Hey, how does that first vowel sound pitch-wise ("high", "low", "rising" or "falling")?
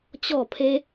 falling